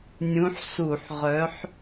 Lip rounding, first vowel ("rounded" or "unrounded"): rounded